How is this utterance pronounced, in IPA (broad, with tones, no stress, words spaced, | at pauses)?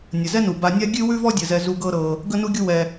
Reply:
nʲə˨zɛ˦nu˨ ba˧nʲa˦ ɡʲʉ˦wʉ˦vɔ˦dʲə˨ zɛ˧zu˧ɡɤ˦ ɾɤ˧ | ɡə˦nu˦ɡʲu˦ wɛ˧